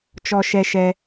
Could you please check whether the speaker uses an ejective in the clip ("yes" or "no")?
no